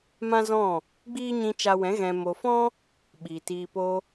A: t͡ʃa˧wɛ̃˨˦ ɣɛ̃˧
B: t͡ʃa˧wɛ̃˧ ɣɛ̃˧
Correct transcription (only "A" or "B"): A